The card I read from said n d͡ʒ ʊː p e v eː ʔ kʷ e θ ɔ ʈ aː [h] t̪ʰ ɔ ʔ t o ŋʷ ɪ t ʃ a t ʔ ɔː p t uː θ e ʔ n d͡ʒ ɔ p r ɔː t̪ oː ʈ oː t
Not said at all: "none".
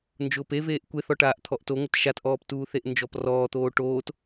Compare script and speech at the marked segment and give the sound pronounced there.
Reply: ʔ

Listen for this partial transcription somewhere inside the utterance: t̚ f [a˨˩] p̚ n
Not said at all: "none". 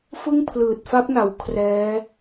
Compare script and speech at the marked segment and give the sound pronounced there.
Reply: a˦˥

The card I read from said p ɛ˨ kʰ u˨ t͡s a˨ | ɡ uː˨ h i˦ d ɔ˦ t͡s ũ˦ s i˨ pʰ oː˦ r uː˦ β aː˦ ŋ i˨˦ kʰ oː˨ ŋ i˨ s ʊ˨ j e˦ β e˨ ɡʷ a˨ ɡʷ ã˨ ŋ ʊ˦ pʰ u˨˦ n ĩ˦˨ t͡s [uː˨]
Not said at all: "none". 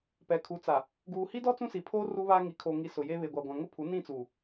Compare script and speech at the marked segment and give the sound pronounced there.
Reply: uː˨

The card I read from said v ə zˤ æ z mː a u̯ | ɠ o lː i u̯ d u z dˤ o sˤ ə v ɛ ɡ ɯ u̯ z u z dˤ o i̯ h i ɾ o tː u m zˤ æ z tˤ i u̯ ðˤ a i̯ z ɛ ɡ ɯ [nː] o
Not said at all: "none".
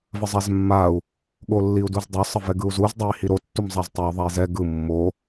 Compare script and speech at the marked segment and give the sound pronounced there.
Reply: mː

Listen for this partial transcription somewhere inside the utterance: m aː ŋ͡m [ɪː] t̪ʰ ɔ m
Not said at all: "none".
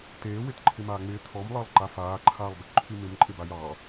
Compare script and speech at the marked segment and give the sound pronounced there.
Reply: ɪː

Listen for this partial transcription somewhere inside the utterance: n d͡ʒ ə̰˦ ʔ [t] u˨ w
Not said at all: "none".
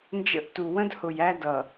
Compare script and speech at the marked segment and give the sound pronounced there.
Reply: t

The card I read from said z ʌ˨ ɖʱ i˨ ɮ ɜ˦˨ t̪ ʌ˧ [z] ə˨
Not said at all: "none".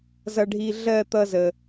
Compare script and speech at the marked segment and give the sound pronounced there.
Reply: z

